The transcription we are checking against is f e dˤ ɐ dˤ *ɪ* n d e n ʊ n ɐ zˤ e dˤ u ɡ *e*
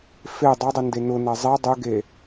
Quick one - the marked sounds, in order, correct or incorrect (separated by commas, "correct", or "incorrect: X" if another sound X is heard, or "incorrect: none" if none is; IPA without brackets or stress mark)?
correct, correct